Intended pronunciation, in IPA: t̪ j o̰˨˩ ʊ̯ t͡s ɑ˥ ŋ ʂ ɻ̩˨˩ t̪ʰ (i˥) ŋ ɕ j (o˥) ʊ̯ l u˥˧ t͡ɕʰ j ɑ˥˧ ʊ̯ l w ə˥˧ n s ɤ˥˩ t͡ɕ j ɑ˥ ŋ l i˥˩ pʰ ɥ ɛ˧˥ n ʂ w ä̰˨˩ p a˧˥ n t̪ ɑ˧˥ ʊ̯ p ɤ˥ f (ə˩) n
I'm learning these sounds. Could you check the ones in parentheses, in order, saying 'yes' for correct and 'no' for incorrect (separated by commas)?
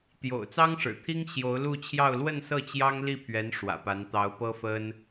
yes, no, no